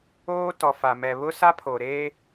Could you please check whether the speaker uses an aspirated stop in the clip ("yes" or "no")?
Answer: yes